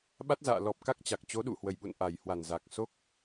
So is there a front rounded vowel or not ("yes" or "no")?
no